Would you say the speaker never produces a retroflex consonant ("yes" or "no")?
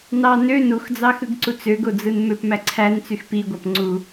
yes